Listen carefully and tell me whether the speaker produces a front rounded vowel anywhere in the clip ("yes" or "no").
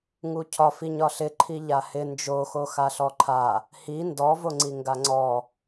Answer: no